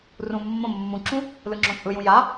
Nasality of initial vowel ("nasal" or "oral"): nasal